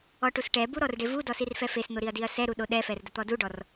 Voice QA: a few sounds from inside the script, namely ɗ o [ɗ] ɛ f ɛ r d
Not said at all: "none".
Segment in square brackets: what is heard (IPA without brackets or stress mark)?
ɗ